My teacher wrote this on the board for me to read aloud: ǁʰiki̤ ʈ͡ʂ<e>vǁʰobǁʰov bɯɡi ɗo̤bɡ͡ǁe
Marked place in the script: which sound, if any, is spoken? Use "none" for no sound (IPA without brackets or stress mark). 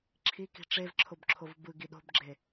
e